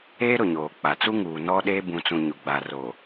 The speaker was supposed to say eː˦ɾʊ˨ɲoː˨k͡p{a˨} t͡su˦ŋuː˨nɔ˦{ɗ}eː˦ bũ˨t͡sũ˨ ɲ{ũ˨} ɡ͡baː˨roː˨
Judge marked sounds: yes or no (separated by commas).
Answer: yes, yes, no